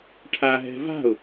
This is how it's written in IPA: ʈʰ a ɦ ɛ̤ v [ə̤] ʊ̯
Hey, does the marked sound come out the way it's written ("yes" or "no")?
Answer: no